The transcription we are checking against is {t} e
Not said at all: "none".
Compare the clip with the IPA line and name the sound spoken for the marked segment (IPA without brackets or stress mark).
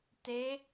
t